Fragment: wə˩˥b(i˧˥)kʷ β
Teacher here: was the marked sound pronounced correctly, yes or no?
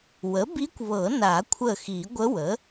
yes